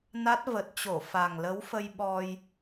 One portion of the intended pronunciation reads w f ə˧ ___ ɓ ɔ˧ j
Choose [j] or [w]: j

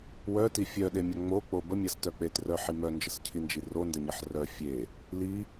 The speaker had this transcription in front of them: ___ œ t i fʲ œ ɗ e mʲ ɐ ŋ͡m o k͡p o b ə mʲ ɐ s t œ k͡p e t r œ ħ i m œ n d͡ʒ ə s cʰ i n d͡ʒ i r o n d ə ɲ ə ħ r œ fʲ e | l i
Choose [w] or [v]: w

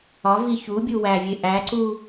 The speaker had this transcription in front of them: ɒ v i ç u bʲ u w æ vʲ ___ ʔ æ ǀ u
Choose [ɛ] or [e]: e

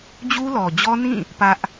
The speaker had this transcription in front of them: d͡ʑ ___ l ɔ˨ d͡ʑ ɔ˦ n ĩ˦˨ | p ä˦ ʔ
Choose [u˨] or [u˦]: u˦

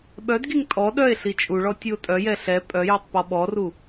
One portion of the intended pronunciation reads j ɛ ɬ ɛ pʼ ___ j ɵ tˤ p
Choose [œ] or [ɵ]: œ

